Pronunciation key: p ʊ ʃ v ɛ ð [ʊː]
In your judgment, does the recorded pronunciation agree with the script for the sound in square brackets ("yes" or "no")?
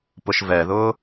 yes